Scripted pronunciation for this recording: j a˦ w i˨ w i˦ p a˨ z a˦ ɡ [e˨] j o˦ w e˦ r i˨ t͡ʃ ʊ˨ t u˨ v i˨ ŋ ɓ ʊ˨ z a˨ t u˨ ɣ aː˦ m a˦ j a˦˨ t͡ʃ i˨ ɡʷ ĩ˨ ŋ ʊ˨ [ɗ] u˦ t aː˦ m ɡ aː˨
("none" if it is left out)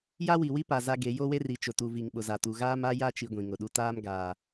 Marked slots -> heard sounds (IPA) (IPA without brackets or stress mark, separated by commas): e˨˦, ɗ